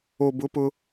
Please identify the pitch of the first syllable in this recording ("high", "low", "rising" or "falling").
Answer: low